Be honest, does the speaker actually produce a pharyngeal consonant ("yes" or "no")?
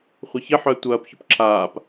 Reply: yes